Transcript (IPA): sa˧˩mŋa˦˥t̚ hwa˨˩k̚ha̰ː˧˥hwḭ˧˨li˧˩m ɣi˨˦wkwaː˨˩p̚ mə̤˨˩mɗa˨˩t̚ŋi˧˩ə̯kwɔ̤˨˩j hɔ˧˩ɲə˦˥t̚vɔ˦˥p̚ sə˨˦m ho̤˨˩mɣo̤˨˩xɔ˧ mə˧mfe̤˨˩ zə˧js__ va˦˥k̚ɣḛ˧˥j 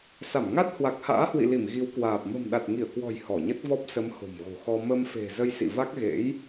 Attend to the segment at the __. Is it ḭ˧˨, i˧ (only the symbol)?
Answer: ḭ˧˨